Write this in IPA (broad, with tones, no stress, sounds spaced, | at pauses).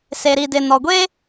s e˨ ɾ i˨ d ɪ˨ n ɔ˨ ɡʷ e˦